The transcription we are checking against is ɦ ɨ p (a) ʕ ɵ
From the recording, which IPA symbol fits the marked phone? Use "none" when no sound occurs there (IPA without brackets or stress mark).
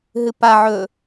a